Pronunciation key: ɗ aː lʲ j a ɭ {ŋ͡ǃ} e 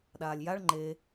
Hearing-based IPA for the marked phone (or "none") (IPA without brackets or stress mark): ŋ͡ǃ